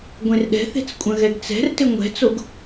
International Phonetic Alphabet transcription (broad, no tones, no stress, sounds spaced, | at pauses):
ɡʷ ẽ r ɗ ɛ̤ θ e̤ t͡s kʷʼ ɐ̃ ɣ ɛ ɡ t͡s ɛ̤ r t ɪ ŋʷ ɛ̤ t͡s o ɡ